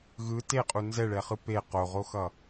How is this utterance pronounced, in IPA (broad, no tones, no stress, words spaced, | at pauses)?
ɣɯ teqʼu nzɛɭɛχɯ pe qoʁoxʌ